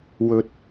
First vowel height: mid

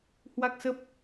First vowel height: low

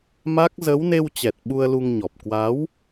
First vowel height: low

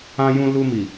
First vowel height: low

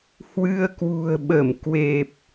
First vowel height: high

